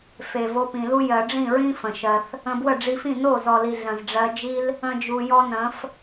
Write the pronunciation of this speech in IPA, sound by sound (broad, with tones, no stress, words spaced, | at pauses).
fe˨vo˧pĩ˨lu˦ jɜ˨ɖ͡ʐĩ˦˨ɹĩ˦ fə̃˨ʃɜ˧θ | ə̃˧bwə˦˨ɖ͡ʐi˧fĩ˦˨ no˦˨zɔ˨li˨ ɮə̃˨zɖ͡ʐɜ˧d͡ʒi˦l | ə̃˦d͡ʒu˧ jɔ˦nə̃˨˦f